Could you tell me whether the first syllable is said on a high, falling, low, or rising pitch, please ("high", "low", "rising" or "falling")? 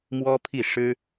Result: high